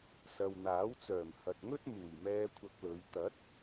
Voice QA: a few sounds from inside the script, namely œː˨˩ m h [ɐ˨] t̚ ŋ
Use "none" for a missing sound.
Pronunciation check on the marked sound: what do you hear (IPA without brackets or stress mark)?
ɐ˨